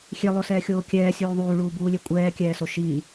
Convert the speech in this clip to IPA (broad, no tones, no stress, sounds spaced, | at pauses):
xʲ e lˠ o s ɛː xʲ oː kʲ ɛː sʲ uː ðˤ uː ɭ uː b uː lʲ e kʷʼ ɛː kʲ ɛː s o ʃ iː